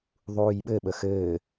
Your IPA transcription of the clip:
ðˤ uː j ɓ ɘ ɓ ə x ɘː

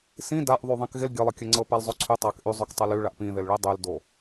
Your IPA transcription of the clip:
s ĩ d a ʔ ðˤ y ðˤ ĩ k ɣ ɪ l ɡʲ ə lˠ ə kʲ ə ŋ͡ǀ ɤ p a l zˤ o ǀʰ y tˤ a k ʔ y zˤ ʉ k tˤ ə l y ɭ a ʔ p ĩ ð ɪ l ɭ i dˤ y l d o

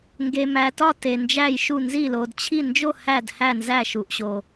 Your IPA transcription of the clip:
ŋ ɡ e˨ m æ˨ t ɒ˦˨ t e˨ n d͡ʒ æ˦˨ j ʃ u˦˨ n z i˦˨ l o˨ d t͡ɕʰ i˦˨ n d͡ʒ o˦˨ h æ˦˨ d h æ˦˨ n z æ˦˨ ʃ u˨ ʔ ɕ o˨

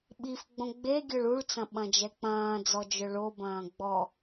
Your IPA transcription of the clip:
ɓ i f ɡ͡b õ ɡ͡b e ɡʲ œ ɭ u ɭ t͡s ɐ̃ ɓ ɐ̃ d͡ʒ ɛ k͡p ɐ̃ː d͡z ɔ d͡ʒ œ ɭ o b ɐ̃ː ɡ͡b ɔ

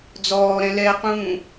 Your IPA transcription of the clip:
d͡z ɔː ɾ ɛ̃ l ɛ q ũː

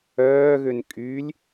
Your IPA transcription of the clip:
œː ɣ ø n kʼ y lʲ

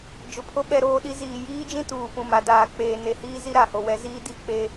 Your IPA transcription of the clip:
d͡ʒ ʊ˨ pʰ o˦ ɓ ɛ˦ ɾ oː˦ ɗ i˦ z iː˨ j iː˦ d͡ʒ ĩ˦ t uː˨ p ũ˨ m a˨ d aː˨ k͡p eː˨ n e˨ h iː˦ z i˦ ɾ a˨ h o˨ w ɛ˦ z iː˦ d i˦˨ k͡p e˦

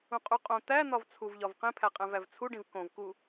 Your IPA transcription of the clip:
ũ qʼ u qʼ õ t̪ æ n̪ ɒ v t͡sʰ u v ʎ ɒ v q ẽ pʰ æ qʼ æ̃ v æ v t͡sʰ u ɖ ĩ v k õ v k u

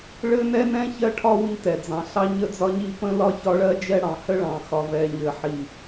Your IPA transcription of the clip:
ɭ ɘ˦ n ɛ˦ n ɛ̃˦ ç ɜ˦ ʈʰ ɒ˦ w i˦ t ɛ˨ d͡z ɑ̃˨ ɬ ɑ˦ ɲ ə˦ d͡z ɒ˦ ɲ i˦ p ə̃˦ l ɒ˦ ç ɒ˦ ɭ ɜ˦ d͡ʒ ɛ˦ ɽ ɑ̃˨ h ə˦ ɭ ɑ̃˨ x ɒ˨ v ɛ˨ ɲ ɘ˨ ħ i˨

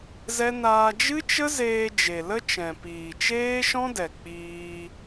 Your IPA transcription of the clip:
z ɛ˦ n aː˧ d͡ʒ ɨ˦ t͡ʃ ə˦ z eː˧ d͡ʒ e˨ l ə˦ t͡ʃ ɛ̃˨ p iː˨ t͡ʃ eː˦ ʃ ɔ̃˦ d ɛ˨ k͡p iː˧

